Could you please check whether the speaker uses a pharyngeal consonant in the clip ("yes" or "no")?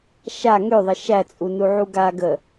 yes